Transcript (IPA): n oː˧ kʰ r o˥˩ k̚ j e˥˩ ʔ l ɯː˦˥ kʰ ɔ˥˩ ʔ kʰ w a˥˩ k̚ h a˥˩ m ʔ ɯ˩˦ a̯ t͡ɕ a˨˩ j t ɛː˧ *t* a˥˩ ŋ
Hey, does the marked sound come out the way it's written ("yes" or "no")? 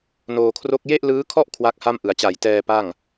no